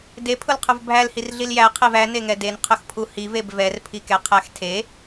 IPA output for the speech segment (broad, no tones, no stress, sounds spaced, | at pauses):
d e pʰ ʊ l qʰ ʊ v bʱ æ l h i r ɮ i l j æ qʰ e v æ n e ŋ ɛ d e n qʰ ʊ x pʰ u h i v e b v ɛ r pʰ i k ɛ qʰ æ x tʰ e